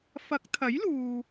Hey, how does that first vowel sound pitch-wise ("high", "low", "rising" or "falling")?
rising